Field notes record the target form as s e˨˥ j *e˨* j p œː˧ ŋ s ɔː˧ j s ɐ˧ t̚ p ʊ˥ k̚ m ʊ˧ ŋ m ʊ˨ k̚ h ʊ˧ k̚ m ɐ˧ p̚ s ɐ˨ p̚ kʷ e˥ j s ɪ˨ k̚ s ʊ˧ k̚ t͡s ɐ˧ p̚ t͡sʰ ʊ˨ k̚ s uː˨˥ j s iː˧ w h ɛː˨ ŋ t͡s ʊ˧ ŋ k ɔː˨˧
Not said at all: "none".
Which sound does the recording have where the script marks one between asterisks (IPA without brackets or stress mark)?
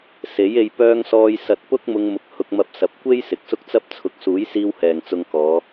e˧